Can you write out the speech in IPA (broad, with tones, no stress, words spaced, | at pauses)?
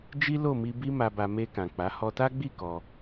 d͡ʒi˦lo˦˨mi˧bi˦ ma˧ba˧ me˧kã˨ k͡pa˨˦ hɔ˧ta˦ɡ͡bi˦˨ kɔ˧